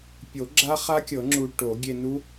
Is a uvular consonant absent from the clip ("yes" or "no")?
no